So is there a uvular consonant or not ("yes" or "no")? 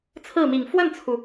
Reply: no